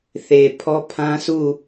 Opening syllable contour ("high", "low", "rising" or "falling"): low